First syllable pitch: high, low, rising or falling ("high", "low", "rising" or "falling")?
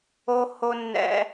high